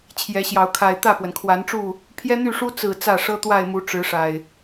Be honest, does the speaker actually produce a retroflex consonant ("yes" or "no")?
yes